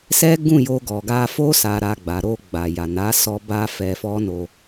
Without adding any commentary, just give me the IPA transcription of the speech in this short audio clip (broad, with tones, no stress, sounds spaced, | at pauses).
s ɛ˦ ɡ ũ˦˨ j o˧ ɡ ɔ˨ ɡ a˧ f o˦ s a˧ ɾ a˧ ɡ͡b a˨ ɾ o˧ ɡ͡b a˨ j a˨ n a˨˦ s ɔ˧ b a˦ f ɛ˧ f ɔ˦ n o˧